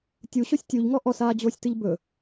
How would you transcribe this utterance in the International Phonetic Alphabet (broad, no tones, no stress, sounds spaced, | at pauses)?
tʲ u ɕ o sʲ tʲ u ʎ ŋ ɔ ʔ ɔ s aː d͡ʑ oː sʲ t ɨ ʎ b ɵ